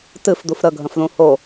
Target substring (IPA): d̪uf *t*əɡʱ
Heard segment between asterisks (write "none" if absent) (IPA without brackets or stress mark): ɾ